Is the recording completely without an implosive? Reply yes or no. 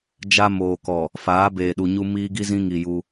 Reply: no